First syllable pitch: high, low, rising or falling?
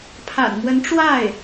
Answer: low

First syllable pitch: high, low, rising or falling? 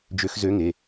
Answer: rising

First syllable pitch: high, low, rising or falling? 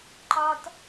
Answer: high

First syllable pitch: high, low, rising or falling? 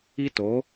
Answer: high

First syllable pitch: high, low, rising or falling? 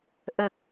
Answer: low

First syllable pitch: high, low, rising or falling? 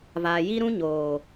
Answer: low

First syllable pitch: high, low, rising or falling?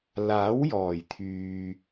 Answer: rising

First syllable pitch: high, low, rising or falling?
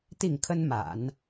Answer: falling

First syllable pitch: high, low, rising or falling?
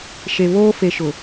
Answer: low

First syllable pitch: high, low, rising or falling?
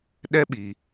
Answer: high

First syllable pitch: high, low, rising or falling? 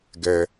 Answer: high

